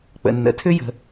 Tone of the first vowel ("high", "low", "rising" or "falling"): low